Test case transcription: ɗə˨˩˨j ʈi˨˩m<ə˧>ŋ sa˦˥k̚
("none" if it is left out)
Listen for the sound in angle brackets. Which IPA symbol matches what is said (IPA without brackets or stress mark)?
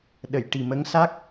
ə˧˥